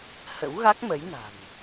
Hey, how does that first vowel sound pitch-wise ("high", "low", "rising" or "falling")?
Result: rising